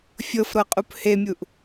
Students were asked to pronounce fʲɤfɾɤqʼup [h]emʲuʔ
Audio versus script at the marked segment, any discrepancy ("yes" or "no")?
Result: no